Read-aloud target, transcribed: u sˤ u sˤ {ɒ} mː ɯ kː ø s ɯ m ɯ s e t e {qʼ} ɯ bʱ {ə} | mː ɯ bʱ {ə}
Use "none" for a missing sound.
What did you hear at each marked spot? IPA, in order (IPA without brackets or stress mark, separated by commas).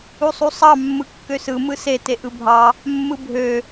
ɑ, ʔ, ɑ, ø